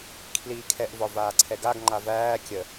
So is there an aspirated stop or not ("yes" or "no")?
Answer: yes